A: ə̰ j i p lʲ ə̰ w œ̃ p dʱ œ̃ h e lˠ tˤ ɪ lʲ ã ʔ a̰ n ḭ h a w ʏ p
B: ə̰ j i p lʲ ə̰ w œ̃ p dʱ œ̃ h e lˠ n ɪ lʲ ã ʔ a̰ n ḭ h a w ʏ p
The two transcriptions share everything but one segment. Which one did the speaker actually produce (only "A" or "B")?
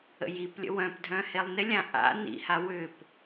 B